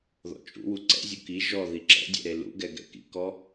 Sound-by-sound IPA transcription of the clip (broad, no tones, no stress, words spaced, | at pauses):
ðɔ̰t͡ʃʼṵwu ǀɛ̰zʲu ki ʒɔ ðiǁɛ̰dʲɛ̰ ɾelṵɡɛ ɡɛ̰kḭkɔ